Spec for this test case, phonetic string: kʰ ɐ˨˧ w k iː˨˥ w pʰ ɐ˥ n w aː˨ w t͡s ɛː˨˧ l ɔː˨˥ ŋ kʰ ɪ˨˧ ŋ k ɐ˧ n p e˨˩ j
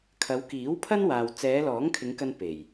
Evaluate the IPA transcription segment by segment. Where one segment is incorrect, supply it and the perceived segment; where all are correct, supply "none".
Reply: none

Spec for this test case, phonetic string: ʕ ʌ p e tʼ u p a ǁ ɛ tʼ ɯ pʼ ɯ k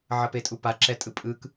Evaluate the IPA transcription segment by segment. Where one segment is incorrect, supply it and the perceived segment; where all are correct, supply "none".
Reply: none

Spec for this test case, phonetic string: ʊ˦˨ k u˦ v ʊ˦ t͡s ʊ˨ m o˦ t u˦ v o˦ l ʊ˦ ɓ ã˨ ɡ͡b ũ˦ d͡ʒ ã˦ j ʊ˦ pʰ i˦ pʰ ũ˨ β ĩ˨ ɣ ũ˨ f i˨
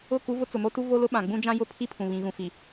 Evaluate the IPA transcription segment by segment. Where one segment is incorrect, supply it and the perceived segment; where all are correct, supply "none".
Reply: none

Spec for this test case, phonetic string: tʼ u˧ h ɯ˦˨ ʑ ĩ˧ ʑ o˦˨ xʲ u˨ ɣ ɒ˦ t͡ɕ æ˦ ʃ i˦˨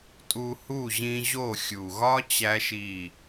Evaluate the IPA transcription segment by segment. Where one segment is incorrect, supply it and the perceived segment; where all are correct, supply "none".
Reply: ɯ˦˨ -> u˦˨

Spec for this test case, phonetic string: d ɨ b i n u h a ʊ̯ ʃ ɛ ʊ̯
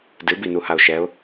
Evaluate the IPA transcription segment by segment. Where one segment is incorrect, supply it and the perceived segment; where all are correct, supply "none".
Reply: none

